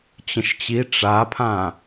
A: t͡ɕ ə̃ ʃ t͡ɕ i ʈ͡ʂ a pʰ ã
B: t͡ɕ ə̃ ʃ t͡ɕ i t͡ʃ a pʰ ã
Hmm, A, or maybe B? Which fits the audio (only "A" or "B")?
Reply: A